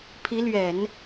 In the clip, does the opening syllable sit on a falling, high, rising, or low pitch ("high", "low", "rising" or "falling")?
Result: rising